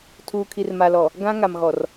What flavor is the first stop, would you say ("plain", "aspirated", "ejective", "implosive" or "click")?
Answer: aspirated